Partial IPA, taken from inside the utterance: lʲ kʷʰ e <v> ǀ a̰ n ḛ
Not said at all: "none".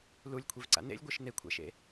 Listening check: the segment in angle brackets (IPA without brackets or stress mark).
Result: v